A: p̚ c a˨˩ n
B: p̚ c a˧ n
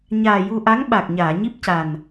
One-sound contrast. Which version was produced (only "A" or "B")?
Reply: A